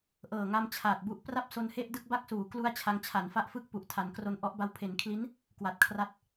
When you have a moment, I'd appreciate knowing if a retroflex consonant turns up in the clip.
no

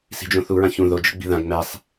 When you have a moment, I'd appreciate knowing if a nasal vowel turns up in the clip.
yes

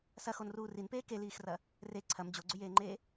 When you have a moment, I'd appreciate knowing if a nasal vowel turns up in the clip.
no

